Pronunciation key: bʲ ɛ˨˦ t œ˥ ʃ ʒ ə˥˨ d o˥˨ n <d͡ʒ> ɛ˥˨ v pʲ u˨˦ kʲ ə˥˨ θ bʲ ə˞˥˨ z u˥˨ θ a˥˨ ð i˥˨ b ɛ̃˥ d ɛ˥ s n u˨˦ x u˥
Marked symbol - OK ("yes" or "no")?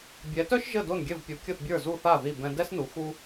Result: no